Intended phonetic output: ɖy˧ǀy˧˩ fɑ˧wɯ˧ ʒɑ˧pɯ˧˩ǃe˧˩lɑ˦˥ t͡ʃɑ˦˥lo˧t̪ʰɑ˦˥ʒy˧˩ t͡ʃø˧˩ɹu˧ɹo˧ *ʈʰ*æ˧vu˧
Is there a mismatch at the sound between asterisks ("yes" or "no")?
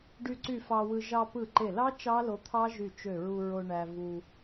yes